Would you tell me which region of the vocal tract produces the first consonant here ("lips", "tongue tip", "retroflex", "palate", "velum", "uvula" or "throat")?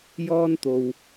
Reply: palate